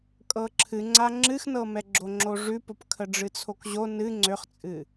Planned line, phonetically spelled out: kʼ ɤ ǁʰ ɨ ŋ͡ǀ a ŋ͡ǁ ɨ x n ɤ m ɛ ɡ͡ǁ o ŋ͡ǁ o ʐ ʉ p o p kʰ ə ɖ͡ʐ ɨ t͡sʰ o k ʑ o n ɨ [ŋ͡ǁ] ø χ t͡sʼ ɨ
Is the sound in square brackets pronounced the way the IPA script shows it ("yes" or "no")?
no